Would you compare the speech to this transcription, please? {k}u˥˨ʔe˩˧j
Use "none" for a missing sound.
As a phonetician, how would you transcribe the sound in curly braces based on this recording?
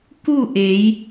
k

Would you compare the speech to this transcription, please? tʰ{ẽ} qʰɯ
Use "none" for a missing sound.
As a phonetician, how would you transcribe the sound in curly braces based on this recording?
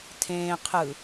ẽː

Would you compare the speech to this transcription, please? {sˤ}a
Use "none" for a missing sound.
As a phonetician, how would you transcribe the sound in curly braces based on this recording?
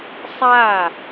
sˤ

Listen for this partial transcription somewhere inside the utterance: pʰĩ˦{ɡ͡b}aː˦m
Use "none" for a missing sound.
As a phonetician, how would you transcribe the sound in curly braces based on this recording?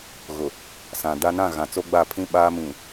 ɓ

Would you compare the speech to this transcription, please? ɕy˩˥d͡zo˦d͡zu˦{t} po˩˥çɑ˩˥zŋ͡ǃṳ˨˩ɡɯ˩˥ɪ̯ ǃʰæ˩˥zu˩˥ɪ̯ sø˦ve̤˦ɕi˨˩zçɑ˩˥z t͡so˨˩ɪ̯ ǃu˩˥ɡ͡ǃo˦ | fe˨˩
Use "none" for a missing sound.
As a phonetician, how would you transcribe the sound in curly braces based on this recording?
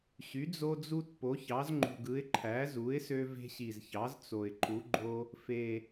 t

